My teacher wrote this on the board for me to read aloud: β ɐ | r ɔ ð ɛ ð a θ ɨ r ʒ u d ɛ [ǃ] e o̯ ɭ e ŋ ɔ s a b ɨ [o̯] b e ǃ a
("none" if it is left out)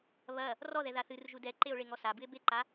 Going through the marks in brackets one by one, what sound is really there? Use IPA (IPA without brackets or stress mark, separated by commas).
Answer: ǃ, e̯